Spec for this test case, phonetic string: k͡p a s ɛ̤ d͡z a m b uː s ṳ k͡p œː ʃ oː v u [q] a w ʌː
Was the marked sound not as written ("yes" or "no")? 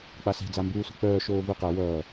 no